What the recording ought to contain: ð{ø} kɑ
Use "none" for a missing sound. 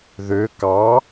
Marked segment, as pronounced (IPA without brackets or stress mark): ø